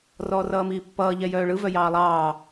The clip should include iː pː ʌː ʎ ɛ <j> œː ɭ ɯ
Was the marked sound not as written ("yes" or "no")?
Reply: no